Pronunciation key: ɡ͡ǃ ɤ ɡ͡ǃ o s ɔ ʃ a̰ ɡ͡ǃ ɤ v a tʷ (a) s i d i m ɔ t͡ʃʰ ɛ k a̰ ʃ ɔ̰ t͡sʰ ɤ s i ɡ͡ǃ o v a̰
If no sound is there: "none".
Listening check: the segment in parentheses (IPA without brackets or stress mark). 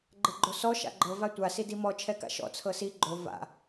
a